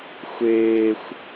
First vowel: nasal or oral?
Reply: oral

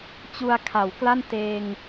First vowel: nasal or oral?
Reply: oral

